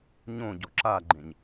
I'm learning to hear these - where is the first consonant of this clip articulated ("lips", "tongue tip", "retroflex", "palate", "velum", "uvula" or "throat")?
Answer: palate